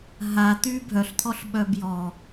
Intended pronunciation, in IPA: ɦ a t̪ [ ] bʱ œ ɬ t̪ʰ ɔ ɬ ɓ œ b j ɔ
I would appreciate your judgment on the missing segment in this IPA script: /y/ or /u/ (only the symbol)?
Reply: y